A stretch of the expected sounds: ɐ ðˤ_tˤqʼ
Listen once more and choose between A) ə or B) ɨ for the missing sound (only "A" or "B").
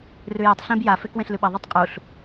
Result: B